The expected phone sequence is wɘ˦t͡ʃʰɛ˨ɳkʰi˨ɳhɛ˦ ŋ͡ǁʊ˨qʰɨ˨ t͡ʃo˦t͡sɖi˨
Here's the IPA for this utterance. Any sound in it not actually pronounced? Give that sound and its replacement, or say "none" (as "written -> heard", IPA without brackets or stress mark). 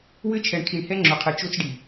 none